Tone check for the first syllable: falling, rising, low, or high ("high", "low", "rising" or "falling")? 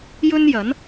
high